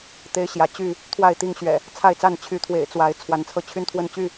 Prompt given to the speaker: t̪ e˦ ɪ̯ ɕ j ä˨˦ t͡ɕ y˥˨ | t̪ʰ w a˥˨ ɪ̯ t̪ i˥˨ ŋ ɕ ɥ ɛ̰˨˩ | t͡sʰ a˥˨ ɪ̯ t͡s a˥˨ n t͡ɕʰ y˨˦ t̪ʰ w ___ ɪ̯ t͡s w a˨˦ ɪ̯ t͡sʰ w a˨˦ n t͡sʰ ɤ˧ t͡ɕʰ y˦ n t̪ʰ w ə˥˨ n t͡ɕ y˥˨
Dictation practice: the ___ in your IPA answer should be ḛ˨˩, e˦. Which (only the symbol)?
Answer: ḛ˨˩